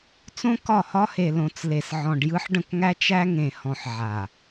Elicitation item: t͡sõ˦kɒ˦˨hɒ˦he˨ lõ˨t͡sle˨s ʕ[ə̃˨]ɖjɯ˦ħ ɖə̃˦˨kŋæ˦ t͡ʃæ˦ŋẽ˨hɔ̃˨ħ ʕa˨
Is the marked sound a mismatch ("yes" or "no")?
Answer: yes